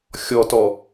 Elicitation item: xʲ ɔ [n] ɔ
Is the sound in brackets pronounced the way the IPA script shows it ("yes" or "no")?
no